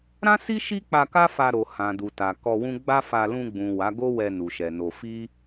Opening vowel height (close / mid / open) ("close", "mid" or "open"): open